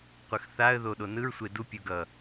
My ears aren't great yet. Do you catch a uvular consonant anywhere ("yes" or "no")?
yes